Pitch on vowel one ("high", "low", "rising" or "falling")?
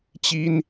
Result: high